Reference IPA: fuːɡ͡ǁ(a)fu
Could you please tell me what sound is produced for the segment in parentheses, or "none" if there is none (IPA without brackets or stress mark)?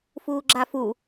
a